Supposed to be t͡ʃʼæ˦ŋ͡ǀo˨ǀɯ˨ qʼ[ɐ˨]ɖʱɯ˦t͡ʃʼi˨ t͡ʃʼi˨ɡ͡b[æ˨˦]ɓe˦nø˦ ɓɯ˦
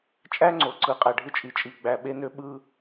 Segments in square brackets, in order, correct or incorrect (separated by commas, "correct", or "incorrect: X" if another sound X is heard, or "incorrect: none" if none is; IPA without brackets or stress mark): incorrect: æ˨, incorrect: æ˨